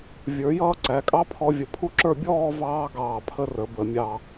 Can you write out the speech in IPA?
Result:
vʲ ə˞˩˧ j ʌː˧ ǀ æ˩˧ kʼ ɑ˥ pʰ ɔ˧ vʲ ə˧ pʰ u˥ ǁ ə˞˥˧ bʲ ɔː˥˧ v ɑː˥ ɡ ɑː˧˩ pʰ ə˧ r ə˩˧ b ə˩˧ mʲ ɑ˧

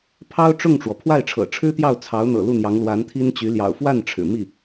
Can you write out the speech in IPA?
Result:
pʰ ɑ˥ ʊ̯ ʈ͡ʂ ʊ˥˩ ŋ ʈ͡ʂ w ɔ˩ pʰ w a˥˩ ɪ̯ ʈ͡ʂʰ ɤ̰˨˩ ʈ͡ʂʰ ɻ̩˥ t̪ j ɑ˥˩ ʊ̯ t͡sʰ ɑ˧˥ ʊ̯ n̪ ɤ̰˨˩ l u˥˩ n̪ j ɑ˧˥ ŋ l w a˧˥ n t̪ʰ i˥ n t͡ɕ y˧˥ l j ɑ̰˨˩ ʊ̯ f w a˥˩ n ʈ͡ʂʰ ɻ̩˨˩ m i˥˩

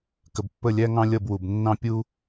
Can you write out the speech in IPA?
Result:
k ə˨ b pː ə˦˨ lʲ æ˦ ŋ ɑ̃˦ lʲ ʌ˦˨ b w u˨ b nː ɑ̃˦ pʲ u˦

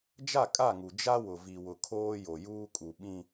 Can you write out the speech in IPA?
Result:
d͡ʒ a˦˨ kʼ a˦˨ ŋ u˨ d͡ʒ a˦ w ʊ˨ v i˨ w ʊ˨ kʰ oː˦ j o˨ j uː˦ kʼ u˨ ɓ ĩ˦

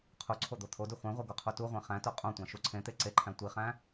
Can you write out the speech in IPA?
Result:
qʰ u ǀʰ o d̪ o t̪ʰ o d u χʷ ẽ ʁʷ e ɡ o qʰ u t u ʁʷ ẽ χ æ̃ t o qʼ õ tʷ æ̃ ʃ u ǀʰ ẽ t̪ e ǀ e ǃʰ æ̃ tʷ i χ æ̃

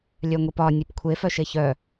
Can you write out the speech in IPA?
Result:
lʲ œ ŋʷ i p ɒ nʲ ʉ p kʷʰ e f œ ʃ e ç œ

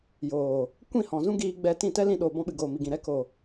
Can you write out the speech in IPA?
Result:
j oː˨ | kʷ ĩ˦˨ h ɔ̃˨ z ũ˦ ɡ iː˧ ɡ͡b ɛ˧ t ĩ˦˨ t ɛ˦ l ĩ˧ ɗ oː˨ b ɔ̃˧ ɓ ɨ˨ ɡ oː˨ m i˨ ɡ ĩ˨ ɾ ɛ˨˦ k o˨

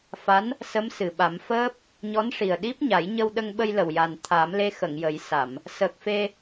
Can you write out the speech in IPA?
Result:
f a˧˥ n | s ə˧˥ m s ɨ˨˩ ɓ a˨˩˦ m f əː˦˥ p̚ | ɲ ɔ˧˥ n ʂ i˨˩ ə̯ ɗ i˦˥ p̚ ɲ a˨˩˦ j ɲ ə˧ w ɗ ə˧ ŋ ɓ ə˧ j l ə˨˩ w j a˨˩ n t̪ʰ a˨˩˦ m l e˧ x ə˨˩˨ ŋ j ə˨˩˦ j s a˨˩˨ m | s əː˨˩ k̚ f e˧

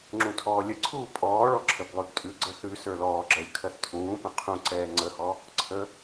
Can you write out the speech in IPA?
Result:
ŋ͡ǁ ũ tʰ ɔː lʲ ə ǀʰ uː pʼ ɔː ɭ ɔ ǁʰ ə b lˠ ʉ ɡ tʼ ʉ ɡ͡ǀ ə θ ʉ s ə˞ l ɔː ɡ͡ǁ ɜ lʲ kʰ ɜ θ tʰ ũː p ə̃ qʰ ũ ǀ ɛː ŋ͡ǀ ə h ɔ | ǀʰ ə

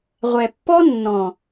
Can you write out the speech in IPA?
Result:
ʁʷ ɛ˨ pː ɔ˦ nː ɔ̃˨

